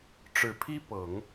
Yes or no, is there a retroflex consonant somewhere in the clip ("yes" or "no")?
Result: yes